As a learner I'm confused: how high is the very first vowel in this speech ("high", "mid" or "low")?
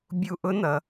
high